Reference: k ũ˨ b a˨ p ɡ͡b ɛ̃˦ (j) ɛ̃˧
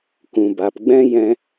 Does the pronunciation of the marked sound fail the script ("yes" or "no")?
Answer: no